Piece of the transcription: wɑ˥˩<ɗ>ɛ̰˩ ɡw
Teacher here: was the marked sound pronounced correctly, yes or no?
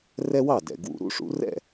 no